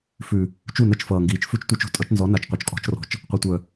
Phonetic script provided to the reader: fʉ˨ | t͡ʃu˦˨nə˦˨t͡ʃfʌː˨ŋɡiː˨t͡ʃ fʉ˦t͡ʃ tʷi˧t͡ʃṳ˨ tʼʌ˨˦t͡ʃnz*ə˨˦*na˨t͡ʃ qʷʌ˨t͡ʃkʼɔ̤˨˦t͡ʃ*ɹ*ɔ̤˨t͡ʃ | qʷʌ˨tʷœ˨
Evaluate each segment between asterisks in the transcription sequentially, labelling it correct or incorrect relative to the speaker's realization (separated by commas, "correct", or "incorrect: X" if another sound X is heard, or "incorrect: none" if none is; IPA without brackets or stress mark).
incorrect: ɔ˨˦, incorrect: r